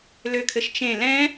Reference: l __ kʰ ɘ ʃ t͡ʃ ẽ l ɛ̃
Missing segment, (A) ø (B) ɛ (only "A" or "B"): A